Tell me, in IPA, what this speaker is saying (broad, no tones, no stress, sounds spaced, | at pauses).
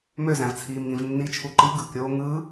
m ø z æ̃ v t͡sʰ iː m ŋ ĩ v nː i t͡ʃʰ u ǃ i ɡ ɯ k ɾʲ oː ŋ ɯ